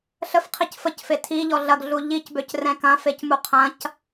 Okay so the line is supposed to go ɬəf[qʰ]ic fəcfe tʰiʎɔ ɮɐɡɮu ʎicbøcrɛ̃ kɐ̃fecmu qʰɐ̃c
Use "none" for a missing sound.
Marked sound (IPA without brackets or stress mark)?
qʰ